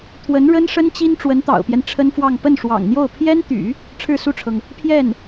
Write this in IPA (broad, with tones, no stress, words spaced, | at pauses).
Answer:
t̪ʰwə˧˥nɻə˥n ʂə˥nt͡ɕi˥n ʈ͡ʂwə˧˥nt̪ɑ̰˨˩ʊ̯pjɛ˦n ʈ͡ʂʰə˥nfwɑ˥˧ŋ pə˥˩nʂwɑ̰˨˩ŋn̪jo˥˩ʊ̯ pʰjɛ˥nt̪y̰˨˩˦ | ʈ͡ʂʰɻ̩˥˧su˥˩ʈ͡ʂʰɤ˩ŋ | pʰjɛ˥˩n